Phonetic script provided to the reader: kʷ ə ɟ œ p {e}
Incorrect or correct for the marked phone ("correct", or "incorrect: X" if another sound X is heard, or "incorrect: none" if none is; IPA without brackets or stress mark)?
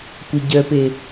correct